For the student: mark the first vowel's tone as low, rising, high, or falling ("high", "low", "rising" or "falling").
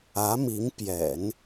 rising